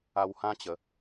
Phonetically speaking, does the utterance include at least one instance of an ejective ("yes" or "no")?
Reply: no